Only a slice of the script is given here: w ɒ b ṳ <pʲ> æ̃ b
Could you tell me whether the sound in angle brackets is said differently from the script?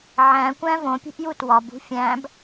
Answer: yes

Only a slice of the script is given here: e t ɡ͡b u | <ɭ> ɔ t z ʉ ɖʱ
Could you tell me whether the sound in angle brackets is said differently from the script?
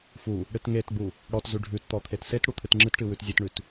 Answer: yes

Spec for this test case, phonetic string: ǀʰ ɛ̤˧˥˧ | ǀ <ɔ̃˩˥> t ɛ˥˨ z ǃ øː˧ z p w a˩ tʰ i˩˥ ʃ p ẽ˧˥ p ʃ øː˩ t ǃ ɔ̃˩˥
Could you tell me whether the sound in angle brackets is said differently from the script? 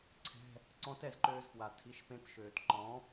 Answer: yes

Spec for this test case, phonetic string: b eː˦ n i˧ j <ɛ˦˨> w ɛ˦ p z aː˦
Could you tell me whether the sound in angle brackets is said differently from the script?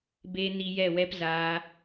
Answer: no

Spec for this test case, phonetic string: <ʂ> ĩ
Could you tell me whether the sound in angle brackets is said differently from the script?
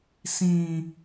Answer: yes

